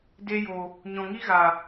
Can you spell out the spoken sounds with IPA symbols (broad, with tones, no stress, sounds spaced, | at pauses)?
d e˧ j o˨ | ɲ ɔ̃˨ ŋ i˦ ɣ a˨